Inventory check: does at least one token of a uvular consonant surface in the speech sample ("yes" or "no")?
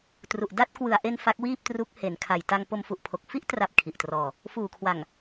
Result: no